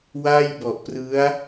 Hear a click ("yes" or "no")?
no